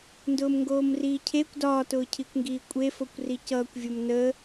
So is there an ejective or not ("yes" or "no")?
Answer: yes